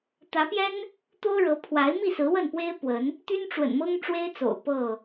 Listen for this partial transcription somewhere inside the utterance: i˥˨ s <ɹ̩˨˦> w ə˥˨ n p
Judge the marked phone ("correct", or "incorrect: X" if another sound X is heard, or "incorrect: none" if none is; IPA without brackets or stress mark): correct